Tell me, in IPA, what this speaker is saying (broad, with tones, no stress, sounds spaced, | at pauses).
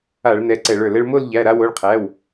a˧˩˧ ɭ n ɛ˩˧˩ ǀ ɛ˧˩˧ ɭ ə˞˧˩˧ l ɛ˧ ɭ m o˥˧ l ʎ æ˩˧˩ ɾ a˥˧ w o˩˧˩ ɭ qʰ æ˩˧˩ w